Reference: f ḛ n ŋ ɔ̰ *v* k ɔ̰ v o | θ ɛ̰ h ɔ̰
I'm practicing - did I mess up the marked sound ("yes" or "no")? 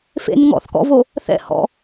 yes